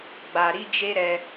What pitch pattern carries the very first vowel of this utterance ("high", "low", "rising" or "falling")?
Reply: low